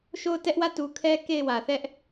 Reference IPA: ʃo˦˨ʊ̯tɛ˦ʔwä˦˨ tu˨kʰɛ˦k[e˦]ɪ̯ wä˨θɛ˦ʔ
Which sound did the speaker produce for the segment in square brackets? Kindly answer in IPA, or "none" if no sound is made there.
e˦˨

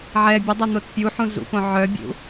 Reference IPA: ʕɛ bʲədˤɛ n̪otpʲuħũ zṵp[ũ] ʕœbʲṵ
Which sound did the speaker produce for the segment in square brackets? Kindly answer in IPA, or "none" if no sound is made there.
õ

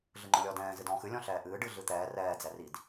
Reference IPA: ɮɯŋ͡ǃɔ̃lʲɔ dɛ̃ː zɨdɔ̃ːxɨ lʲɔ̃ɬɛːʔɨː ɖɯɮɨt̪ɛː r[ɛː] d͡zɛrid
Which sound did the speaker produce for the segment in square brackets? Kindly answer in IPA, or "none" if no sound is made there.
ɛː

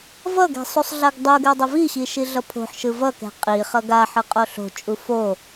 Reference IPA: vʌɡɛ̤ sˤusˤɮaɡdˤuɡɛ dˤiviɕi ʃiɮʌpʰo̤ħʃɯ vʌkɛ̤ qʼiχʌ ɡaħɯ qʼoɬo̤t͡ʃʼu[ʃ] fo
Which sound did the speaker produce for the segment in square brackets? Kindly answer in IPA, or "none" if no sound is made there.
none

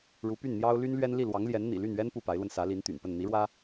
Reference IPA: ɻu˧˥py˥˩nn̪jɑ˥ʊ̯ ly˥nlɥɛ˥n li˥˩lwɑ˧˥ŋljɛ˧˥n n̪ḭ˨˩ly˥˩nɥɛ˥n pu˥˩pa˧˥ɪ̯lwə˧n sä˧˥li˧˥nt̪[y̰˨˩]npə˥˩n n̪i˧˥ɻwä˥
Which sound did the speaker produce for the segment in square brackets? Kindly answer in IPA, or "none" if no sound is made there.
y̰˨˩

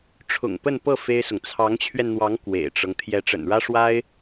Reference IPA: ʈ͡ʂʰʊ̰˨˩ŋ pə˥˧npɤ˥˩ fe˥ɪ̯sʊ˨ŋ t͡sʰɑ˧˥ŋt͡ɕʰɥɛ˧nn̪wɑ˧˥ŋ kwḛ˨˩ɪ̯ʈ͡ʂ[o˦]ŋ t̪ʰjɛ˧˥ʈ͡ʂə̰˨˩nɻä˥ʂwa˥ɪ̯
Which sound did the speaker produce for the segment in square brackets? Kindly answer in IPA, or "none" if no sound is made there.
ɤ˦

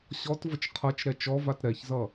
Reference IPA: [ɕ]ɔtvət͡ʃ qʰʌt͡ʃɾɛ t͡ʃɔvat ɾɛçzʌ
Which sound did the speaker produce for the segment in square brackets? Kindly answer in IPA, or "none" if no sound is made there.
ɕ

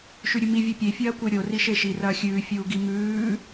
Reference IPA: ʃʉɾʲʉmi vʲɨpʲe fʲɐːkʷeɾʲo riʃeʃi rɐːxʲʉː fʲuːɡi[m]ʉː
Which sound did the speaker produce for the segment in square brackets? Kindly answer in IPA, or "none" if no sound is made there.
m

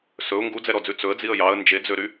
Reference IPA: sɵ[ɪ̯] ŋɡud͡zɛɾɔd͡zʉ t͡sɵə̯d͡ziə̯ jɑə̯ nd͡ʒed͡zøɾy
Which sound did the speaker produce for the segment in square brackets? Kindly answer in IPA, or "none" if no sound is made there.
ʊ̯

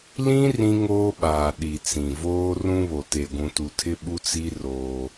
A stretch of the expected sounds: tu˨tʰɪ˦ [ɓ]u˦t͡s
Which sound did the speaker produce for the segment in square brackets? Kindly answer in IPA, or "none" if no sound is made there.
ɓ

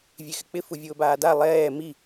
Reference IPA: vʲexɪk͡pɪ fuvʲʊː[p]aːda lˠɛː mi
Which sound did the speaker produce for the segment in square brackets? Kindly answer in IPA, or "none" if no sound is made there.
b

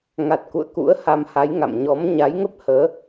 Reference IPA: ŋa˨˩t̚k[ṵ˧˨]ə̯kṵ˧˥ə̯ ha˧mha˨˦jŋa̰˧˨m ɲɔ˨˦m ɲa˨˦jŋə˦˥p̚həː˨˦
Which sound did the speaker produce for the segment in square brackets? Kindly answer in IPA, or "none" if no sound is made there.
ṵ˧˨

